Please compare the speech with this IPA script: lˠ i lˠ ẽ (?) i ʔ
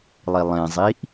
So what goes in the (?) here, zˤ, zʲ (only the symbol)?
zˤ